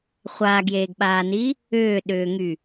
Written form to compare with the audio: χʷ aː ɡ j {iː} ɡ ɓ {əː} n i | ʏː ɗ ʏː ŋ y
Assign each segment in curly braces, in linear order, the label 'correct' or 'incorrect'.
incorrect, incorrect

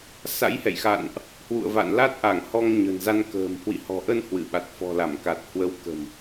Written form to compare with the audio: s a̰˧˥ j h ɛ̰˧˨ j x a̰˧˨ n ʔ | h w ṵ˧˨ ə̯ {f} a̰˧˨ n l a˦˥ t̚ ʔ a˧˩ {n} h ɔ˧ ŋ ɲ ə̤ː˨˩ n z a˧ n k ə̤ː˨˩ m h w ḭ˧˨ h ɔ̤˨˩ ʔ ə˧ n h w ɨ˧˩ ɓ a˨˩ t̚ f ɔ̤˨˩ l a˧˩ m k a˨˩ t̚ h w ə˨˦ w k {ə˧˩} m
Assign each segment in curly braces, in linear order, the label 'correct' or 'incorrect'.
incorrect, incorrect, incorrect

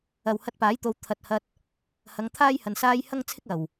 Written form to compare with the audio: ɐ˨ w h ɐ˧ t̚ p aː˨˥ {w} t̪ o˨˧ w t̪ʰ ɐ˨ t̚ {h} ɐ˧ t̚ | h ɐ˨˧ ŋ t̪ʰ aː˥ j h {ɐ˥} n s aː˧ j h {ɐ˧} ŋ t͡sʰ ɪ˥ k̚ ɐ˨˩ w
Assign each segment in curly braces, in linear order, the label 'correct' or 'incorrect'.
incorrect, correct, incorrect, incorrect

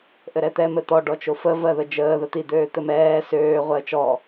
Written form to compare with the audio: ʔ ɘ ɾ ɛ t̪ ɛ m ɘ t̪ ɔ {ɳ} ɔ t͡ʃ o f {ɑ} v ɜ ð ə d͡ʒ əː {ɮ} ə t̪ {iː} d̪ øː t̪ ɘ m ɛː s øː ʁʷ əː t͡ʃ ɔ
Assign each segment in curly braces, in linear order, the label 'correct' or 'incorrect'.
incorrect, incorrect, incorrect, incorrect

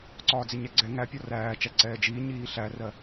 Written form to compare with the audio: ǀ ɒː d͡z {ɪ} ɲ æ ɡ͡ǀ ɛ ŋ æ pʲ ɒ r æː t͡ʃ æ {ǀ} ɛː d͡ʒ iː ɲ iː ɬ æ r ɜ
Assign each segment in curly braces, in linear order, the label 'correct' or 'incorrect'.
correct, correct

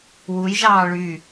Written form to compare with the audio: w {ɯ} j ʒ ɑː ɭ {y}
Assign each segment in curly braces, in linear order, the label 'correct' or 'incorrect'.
incorrect, correct

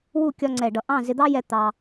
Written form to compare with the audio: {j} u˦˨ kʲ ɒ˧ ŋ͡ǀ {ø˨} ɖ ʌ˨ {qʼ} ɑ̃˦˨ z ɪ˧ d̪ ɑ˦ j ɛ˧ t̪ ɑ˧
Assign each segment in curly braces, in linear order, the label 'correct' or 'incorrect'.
incorrect, incorrect, incorrect

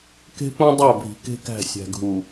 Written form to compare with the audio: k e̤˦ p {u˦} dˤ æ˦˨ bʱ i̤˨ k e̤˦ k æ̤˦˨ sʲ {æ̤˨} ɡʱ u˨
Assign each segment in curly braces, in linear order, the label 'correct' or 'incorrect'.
incorrect, correct

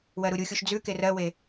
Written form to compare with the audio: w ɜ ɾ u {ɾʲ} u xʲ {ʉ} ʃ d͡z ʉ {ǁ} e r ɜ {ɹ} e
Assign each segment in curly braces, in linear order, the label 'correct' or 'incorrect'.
correct, incorrect, incorrect, incorrect

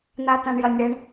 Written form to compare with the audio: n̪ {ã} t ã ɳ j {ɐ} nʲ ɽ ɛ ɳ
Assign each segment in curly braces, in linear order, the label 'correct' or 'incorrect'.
incorrect, correct

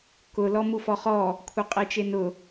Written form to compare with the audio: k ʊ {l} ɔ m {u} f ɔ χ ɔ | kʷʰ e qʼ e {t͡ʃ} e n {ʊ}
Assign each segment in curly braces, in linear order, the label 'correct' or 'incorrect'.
correct, correct, correct, correct

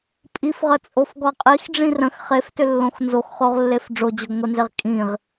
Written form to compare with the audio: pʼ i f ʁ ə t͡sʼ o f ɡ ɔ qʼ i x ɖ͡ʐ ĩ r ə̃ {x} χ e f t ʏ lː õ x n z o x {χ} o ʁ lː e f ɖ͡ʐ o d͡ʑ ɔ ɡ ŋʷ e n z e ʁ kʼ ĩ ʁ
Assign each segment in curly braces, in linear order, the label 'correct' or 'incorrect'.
correct, correct

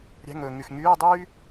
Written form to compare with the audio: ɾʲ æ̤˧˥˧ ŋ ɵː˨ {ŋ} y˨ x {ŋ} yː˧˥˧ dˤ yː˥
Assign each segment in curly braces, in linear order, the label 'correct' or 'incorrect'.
correct, correct

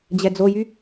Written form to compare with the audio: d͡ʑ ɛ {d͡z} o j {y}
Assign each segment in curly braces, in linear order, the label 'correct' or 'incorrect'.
correct, correct

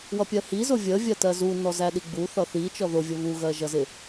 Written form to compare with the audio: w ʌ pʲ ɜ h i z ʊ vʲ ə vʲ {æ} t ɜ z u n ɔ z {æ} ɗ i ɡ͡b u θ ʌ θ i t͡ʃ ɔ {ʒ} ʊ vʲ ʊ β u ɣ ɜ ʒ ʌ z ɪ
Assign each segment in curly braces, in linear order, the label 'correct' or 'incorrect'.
incorrect, correct, incorrect

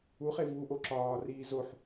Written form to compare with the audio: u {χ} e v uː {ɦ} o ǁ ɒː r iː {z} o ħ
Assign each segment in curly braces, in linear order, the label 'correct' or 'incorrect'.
correct, incorrect, correct

